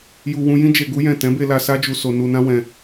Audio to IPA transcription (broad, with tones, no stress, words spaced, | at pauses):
ju˧ wũ˧jĩ˦ d͡ʒe˧ɡu˦jɛ̃˦˨ tɛ̃˨˦be˧la˧ sa˦d͡ʒu˧so˧ nu˧nã˦ wɛ̃˧